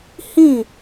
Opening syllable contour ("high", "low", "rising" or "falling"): falling